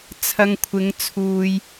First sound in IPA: t͡sʰ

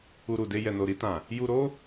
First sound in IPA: u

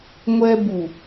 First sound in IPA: ŋʷ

